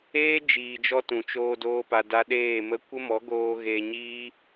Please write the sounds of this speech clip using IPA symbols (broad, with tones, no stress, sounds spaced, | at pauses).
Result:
eː˦ d͡ʒ iː˨ d͡ʒ ɔ˦ t ũ˨ t͡ʃ oː˧ d oː˧ p a˨ d a˧ ɗ eː˦˨ m ə˦ kʷ ə˦ m ɔ˨˦ ɡ oː˧ ɣ eː˧ ɲ iː˦